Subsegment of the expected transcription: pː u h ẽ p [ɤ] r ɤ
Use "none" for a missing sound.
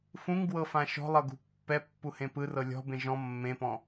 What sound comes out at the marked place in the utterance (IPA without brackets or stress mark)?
ɯ